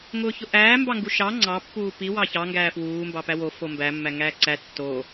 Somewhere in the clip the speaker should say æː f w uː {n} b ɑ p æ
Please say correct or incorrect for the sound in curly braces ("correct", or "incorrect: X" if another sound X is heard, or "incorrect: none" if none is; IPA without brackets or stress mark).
incorrect: m